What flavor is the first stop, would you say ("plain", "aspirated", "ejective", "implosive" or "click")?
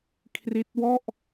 aspirated